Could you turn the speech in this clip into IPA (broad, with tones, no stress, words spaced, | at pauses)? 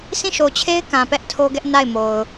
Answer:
sʰĩ˦˨ʃo˨t͡ɕʰe˦ɪ̯ kã˨pɛ˦ʔtʰo˦ɡɛ˦ʔ na˦˨ɪ̯mo˨ʊ̯